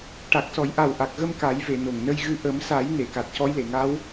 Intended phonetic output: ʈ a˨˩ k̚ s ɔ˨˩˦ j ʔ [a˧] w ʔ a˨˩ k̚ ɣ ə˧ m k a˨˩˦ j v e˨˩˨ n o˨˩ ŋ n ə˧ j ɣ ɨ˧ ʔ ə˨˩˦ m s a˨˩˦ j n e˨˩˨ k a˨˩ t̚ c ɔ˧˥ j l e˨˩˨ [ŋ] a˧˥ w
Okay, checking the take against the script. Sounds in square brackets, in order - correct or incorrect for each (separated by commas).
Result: incorrect, correct